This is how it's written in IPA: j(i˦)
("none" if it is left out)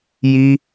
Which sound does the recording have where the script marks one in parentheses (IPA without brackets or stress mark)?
i˦